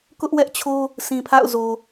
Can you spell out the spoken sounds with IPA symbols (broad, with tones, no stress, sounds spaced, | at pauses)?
k ʊ˦ ʔ w ɛ˦ ʔ t͡ɕʰ o˦ | sʰ ĩ˨ pʰ a̰˦˨ ʊ̯ z o˨